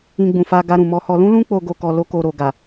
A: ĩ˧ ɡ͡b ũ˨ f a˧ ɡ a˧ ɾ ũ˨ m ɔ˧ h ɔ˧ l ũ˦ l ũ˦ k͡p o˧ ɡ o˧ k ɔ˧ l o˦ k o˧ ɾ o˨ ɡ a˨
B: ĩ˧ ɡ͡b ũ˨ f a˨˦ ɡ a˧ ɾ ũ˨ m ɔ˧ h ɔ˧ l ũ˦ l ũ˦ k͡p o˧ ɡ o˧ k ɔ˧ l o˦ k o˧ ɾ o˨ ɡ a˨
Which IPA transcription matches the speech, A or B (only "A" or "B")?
A